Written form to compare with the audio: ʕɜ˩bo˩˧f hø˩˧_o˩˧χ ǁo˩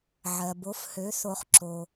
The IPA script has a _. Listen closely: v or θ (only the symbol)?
θ